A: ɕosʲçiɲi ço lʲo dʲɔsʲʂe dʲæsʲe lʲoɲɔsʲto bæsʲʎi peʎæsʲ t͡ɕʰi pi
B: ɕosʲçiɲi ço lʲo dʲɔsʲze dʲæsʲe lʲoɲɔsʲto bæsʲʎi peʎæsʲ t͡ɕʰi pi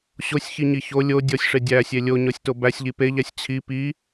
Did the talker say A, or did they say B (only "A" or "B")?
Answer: A